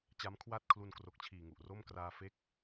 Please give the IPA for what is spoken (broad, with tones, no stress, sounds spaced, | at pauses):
t͡ɕ a˦˥ m kʰ w a˥˩ t̚ kʰ l u˧ n k r o˨˩ k̚ t͡ɕʰ iː˨˩ ŋ u˨˩ ʔ r o˥˩ m k r aː˧ f e˦˥ k̚